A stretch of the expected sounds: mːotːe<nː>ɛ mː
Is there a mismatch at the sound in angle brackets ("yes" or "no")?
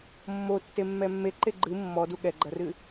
yes